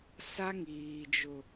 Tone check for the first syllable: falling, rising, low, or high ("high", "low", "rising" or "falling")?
high